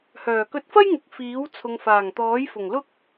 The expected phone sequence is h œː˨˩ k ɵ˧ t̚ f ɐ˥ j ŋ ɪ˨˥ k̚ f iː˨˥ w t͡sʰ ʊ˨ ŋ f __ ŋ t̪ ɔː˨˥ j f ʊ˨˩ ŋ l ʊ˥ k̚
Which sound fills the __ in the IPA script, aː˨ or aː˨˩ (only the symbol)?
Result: aː˨˩